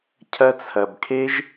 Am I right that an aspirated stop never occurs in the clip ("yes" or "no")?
no